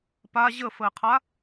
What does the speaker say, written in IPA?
p a ʑ ə f ə ɪ̯ qʰ a

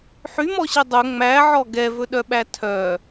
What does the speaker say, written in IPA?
ħ y m ɔ ɕ i dˤ ɵ ŋ͡m æ ʕ ɔ ɡ ɛ v ɵ ɗ œ ɓ æ tʰ œ

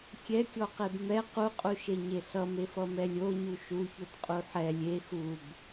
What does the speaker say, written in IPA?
kʲ ɛ kʲ ɔ q e b m ɛ q u qʼ u ʃ e ɲ e ɬ ʌ m e f ʌ m ɛ lʲ o ɲ u ʃ u ç o t qʼ u ħ ɛ lʲ e x u b

